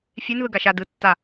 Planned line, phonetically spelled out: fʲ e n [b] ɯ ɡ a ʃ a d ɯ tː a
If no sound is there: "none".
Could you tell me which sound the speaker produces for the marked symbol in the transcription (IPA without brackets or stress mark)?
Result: ð